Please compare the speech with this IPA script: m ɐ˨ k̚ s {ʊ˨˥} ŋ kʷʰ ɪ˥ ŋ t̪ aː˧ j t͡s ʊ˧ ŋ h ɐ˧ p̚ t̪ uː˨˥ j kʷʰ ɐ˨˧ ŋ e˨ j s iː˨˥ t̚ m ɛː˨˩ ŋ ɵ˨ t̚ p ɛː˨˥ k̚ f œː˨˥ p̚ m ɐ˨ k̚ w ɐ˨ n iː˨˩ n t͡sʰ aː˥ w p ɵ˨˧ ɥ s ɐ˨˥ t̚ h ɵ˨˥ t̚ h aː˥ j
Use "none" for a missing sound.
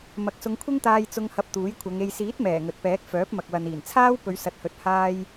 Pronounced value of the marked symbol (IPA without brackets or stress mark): ʊ˨˧